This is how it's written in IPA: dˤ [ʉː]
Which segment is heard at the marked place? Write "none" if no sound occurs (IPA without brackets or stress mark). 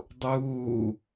uː